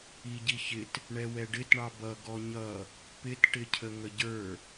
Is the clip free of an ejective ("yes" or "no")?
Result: yes